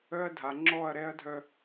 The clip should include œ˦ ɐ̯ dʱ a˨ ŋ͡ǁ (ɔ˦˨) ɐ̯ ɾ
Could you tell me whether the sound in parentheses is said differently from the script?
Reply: no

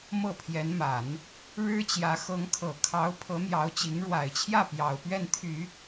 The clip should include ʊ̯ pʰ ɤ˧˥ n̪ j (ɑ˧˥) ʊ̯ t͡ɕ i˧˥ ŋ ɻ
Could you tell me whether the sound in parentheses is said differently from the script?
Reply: no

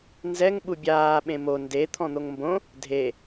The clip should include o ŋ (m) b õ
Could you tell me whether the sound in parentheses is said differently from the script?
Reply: no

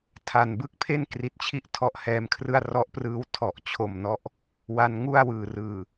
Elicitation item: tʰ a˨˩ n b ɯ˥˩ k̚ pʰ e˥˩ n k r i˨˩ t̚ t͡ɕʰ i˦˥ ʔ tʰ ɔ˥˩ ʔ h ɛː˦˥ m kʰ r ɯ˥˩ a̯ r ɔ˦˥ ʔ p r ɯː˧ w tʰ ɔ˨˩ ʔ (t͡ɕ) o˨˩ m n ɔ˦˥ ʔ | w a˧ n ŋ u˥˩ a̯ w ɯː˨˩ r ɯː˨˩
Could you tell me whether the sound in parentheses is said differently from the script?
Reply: yes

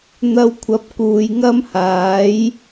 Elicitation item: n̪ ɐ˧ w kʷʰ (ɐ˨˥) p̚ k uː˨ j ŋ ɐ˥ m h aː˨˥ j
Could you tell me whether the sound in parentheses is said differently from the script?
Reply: no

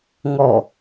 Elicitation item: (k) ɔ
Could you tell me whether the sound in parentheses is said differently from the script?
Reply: yes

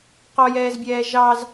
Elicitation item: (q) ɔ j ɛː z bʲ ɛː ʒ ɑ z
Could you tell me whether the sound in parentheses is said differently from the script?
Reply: no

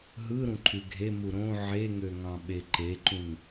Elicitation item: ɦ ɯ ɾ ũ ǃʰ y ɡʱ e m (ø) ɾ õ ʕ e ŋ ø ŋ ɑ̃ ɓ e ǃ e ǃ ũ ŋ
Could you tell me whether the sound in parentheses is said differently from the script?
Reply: yes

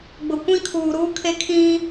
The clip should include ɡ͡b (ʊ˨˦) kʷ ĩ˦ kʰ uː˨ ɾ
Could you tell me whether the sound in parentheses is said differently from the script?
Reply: yes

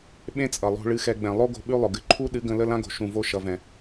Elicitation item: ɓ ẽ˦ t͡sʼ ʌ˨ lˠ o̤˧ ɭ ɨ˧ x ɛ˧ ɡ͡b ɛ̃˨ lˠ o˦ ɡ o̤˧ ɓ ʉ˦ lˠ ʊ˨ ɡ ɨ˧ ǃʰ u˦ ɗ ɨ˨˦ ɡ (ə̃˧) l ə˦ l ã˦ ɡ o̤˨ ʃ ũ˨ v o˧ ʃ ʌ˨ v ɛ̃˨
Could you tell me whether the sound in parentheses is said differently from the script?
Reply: no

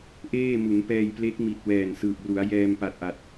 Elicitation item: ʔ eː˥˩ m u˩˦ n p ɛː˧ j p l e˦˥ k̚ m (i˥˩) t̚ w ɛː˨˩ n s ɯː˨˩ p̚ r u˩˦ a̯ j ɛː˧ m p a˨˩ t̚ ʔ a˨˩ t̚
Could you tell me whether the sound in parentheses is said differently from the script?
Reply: yes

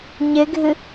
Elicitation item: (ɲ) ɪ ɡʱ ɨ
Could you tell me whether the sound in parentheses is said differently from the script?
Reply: no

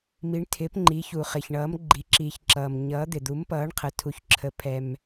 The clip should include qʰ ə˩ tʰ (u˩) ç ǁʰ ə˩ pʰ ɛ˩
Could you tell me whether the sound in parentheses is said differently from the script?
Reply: no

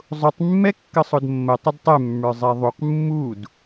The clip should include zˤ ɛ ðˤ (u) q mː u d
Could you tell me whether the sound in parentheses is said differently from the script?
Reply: no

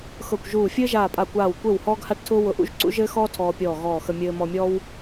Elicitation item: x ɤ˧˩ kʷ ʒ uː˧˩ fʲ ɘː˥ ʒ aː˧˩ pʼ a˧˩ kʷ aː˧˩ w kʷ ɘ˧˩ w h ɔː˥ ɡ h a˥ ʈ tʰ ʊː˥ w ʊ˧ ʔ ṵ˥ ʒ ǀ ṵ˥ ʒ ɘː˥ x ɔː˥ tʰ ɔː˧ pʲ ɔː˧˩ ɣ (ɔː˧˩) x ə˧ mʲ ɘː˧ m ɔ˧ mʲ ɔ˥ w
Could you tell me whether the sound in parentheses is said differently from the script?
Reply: no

